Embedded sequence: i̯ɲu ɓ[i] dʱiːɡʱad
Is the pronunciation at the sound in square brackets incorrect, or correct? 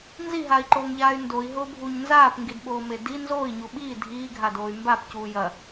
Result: incorrect: iː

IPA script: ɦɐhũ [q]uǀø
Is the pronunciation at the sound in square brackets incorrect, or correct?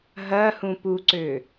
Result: incorrect: p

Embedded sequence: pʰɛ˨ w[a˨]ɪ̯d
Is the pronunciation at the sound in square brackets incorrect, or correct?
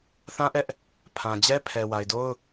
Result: correct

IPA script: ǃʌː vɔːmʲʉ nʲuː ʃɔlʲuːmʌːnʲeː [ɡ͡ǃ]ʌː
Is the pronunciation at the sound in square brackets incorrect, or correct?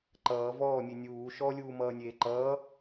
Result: incorrect: ǃ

